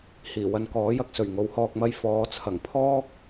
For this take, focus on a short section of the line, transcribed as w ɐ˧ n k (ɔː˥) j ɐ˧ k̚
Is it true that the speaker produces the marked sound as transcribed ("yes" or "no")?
no